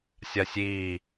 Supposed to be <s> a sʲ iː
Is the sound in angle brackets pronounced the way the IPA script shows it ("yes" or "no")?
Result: no